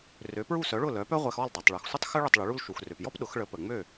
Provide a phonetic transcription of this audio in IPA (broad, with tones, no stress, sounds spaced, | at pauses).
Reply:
r ø˩˥ p ɹ u˥˩ s œ˩˥ ɭ ʊ˥˩ l œ˩˥ p œ˥ ʁʷ ɛ˧ x ɔ˥˩ l dˤ ɛ˩ tˤ ɭ œ˩ x sʷ ɪ˥ tˤ x ʏ˥ ɭ ɪ˥˩ tˤ ɭ ʏ˩˥ ɭ u˥ l ʃ u˩ x r ø˩ p j ɔ˥ p ɗ ʊ˩˥ x ɭ ə˩˥ p ə˩ ŋ͡m ø˥˩